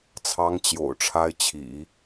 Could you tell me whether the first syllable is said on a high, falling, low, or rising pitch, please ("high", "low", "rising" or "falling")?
high